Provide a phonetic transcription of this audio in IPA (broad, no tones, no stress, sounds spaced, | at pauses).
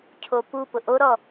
cʰ o p u p ʊ ʔ o ɾ ɔ